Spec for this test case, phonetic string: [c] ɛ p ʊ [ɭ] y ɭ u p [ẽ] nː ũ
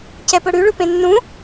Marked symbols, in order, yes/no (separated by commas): yes, no, yes